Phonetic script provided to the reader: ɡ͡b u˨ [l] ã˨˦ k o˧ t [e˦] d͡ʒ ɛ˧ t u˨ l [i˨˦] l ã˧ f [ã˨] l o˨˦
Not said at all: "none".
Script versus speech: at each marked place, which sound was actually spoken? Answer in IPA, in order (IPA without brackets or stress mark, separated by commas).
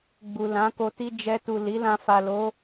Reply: l, i˦, i˨˦, a˨